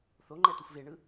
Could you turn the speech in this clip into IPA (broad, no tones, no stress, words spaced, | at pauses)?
θoŋ͡ǃɛ t̪ufveɳɯ